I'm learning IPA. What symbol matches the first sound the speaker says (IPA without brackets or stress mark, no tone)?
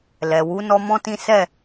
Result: l